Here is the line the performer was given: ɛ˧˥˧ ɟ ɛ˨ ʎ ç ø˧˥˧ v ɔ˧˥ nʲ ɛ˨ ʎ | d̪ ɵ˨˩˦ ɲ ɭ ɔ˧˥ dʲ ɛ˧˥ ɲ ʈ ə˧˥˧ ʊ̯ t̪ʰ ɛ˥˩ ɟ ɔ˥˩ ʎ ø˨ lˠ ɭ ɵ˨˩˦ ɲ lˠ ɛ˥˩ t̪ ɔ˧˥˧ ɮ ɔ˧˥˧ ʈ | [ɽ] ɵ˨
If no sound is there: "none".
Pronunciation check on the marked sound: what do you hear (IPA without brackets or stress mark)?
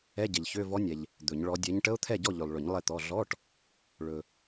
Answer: ɭ